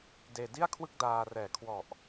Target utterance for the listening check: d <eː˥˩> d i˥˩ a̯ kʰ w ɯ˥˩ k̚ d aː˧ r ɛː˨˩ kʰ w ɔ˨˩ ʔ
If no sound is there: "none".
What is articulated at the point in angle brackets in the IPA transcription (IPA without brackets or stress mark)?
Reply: eː˧